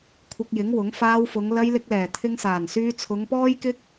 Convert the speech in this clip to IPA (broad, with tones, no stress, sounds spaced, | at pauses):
kʷʰ ɪ˧ k̚ j ɪ˨˥ ŋ w ʊ˨˥ ŋ f aː˧ w f ʊ˨˧ ŋ l ɐ˧ j l ɪ˧ k̚ l ɛː˨˩ t̪ʰ ɪ˧ ŋ s aː˨˩ n s yː˧ t͡sʰ ʊ˨˧ ŋ p ɔː˥ j k ɪ˥ k̚